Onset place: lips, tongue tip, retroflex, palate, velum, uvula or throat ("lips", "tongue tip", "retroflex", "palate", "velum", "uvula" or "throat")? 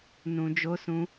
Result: tongue tip